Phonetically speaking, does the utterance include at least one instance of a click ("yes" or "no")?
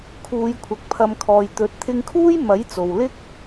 no